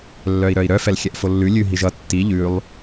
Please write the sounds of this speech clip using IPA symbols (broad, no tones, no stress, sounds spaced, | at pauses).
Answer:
lː œ i̯ ɾ œ i̯ ɾ œ f ɛ l xʲ ɛ ʔ f o lː ʉ lʲ ʉ ɦ i ʒ ʌ tː i ʎ ʉ lˠ